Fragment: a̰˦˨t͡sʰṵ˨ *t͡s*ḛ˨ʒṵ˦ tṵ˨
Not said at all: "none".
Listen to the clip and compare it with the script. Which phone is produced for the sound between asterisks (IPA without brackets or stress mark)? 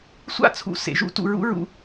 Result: s